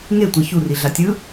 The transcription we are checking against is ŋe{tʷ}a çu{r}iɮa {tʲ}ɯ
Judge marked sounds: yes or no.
yes, yes, yes

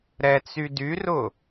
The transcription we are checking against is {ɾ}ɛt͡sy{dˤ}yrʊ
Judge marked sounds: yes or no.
yes, no

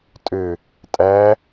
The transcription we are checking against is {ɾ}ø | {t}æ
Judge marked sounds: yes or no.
no, no

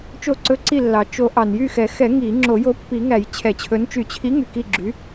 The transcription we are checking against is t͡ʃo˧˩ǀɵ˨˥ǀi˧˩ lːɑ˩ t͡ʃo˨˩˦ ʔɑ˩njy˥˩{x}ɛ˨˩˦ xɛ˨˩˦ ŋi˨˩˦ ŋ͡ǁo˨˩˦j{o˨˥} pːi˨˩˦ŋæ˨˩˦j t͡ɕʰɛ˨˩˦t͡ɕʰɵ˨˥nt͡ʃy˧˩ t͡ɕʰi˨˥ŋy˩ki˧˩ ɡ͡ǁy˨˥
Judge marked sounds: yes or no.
yes, yes

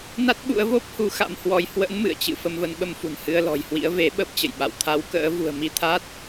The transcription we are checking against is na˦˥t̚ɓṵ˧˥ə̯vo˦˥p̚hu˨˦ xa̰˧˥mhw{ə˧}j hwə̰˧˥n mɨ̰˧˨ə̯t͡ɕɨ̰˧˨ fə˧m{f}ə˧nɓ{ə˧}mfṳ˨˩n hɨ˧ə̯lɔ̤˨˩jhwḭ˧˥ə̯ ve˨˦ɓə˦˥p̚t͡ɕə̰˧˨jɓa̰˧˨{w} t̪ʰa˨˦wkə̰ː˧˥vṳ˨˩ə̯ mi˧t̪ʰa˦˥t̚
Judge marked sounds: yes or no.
no, no, yes, yes

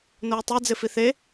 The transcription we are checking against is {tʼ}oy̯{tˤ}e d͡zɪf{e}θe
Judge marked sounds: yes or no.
no, yes, no

